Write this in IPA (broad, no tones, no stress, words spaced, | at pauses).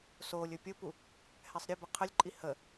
solʲ ɵpʲʊpu | hɛsˤɾʲəbə qʰəlʲǃʼi hə